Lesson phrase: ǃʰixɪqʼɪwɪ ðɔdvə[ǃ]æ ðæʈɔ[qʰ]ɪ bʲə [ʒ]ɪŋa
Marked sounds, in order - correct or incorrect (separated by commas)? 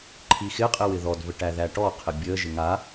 incorrect, correct, correct